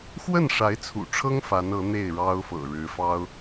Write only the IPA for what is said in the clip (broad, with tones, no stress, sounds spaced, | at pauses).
x w ə˥˩ n ʂ a˧˥ ɪ̯ t͡sʰ ṵ˨˩ ʈ͡ʂʰ ɤ˥ ŋ f a˧˥ n ɤ˧˥ n̪ e˥˩ ɪ̯ ɻ ɑ˥ ʊ̯ f ɤ̰˨˩ ɻ ɻ̩˧˥ f ɑ˥ ʊ̯